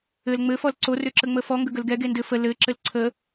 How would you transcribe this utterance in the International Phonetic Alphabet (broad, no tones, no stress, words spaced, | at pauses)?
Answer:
ɘl ŋ͡mɘ fɔlǀo rʏǁəŋ͡məfɔ ŋɡəɡəlɡɛ ɡendɘ fə lɘ ǁɘlǀʰə